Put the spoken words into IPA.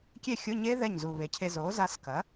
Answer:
kʲ e˥˩ xʲ ʊ˧˥˧ ɲ e˦˥ ð ɛ˥˩ ɲ z u˨˩ β e˩˥ cʰ e˧ z o˩˥ z a˧ s k ɐ˩˥

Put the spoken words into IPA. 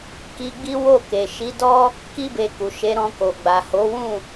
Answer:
k i˧ ɡ͡b i˦ w o˦˨ k e˨ ʃ i˨˦ d ɔ˦ | k i˦ b e˧ k u˨ ʃ e˨˦ ɾ ɔ̃˧ k o˨ ɡ͡b a˨ h o˨˦ w ũ˦˨

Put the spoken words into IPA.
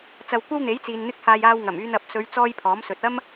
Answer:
t͡s ɐ˧ w kʷ ɐ˥ w n̪ e˨˥ j t͡s iː˨ n n̪ ɪ˥ k̚ h aː˧ j aː˧ w ŋ ɐ˨˩ m yː˧ n ɐ˨ p̚ s ɵ˨˧ ɥ t͡s ɔː˥ j pʰ ɔː˨˥ m s ɵ˨ t̚ ɐ˥ m

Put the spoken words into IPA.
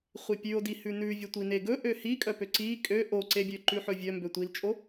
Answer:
χʷ i pʲ ʉ o̯ d i h ʉ n ʉ vʲ ɵ tʷ i n e ɡ ɵ ʔ ø h i kʼ œ p ø ǀ i kʼ ø ʔ o ǀ e bʲ ø ǃ ʉ ħ ɵ vʲ œ m b ø tʷ i l t͡ʃʼ o

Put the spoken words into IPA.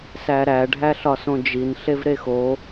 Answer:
s æ ɾ æ ɖʱ æ ɬ ɒ s õ d͡ʒ i n ɬ e v ɾ e x o

